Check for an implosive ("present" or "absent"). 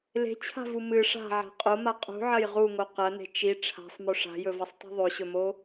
absent